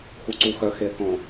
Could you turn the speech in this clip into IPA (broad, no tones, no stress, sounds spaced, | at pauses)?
x u ǀ u x œ x e θ ɔ̃